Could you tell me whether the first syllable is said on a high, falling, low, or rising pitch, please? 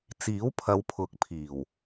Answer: rising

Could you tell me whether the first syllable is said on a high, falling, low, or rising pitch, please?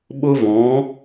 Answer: high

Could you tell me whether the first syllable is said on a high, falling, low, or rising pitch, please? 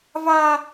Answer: high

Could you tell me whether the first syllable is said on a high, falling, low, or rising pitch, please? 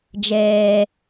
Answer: low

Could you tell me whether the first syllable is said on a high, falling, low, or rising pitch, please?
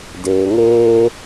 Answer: low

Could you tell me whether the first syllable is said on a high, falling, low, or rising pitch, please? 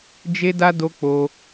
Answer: high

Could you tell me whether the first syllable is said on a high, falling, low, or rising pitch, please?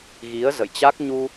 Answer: rising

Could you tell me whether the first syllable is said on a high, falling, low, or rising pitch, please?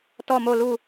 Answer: falling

